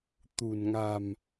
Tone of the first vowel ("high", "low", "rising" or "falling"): low